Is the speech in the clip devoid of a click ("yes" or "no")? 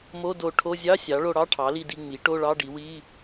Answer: yes